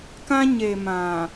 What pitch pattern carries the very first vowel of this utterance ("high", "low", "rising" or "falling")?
high